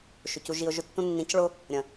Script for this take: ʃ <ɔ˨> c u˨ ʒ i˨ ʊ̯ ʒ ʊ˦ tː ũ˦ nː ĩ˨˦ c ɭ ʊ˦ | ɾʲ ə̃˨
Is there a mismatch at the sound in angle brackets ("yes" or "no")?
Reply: yes